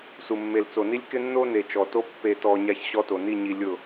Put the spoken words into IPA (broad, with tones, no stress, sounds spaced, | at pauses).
s u˨ mː e˨ l t͡s o˨ n i˦ lʲ k ɪ˦ nː o˦ n e˨ t͡ʃ ɔ˨ t o˦ pː e˨ t ɔ˨ ɲ a˦ ç ɕ ɔ˦ t o˨ n i˦˨ ɲ i˨ lʲ ʊ˦˨